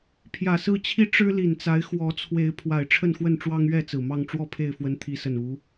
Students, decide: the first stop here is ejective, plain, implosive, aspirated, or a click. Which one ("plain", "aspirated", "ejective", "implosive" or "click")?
aspirated